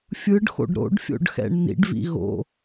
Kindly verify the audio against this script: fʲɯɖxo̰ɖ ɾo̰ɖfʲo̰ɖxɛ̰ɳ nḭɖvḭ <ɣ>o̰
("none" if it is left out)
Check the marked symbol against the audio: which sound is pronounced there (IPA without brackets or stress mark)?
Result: ɣ